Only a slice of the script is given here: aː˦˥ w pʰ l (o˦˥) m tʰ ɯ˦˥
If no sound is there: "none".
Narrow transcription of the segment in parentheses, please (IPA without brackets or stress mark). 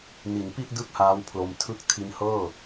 o˧